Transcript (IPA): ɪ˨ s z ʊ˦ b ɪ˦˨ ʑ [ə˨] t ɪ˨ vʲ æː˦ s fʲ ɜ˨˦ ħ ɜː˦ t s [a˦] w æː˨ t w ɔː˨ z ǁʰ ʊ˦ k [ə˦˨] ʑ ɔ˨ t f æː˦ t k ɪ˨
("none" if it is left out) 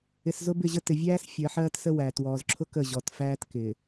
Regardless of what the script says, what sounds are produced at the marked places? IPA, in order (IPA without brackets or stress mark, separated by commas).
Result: ə˦, ə˦, ə˦˨